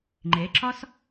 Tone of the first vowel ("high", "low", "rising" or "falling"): rising